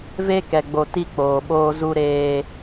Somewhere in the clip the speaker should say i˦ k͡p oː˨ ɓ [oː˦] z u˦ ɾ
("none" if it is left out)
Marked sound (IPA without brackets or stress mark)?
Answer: oː˦